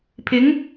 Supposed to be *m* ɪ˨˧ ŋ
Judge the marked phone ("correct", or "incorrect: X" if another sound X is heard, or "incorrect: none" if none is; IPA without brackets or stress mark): incorrect: pʰ